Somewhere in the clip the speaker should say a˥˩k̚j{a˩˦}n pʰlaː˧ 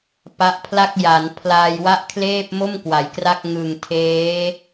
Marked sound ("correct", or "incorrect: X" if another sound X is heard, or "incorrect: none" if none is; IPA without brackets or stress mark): correct